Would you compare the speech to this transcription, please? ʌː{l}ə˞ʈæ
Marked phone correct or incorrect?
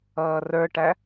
incorrect